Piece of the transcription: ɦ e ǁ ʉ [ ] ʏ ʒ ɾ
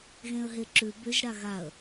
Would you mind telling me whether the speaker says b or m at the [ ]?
b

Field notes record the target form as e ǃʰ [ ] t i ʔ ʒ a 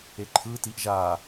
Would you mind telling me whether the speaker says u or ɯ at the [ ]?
ɯ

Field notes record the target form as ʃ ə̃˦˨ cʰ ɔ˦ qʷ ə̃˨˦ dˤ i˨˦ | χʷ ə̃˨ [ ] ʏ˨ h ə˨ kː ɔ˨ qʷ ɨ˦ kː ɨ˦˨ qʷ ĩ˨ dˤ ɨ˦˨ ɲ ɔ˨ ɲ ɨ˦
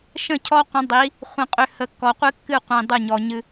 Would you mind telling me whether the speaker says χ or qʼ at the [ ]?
qʼ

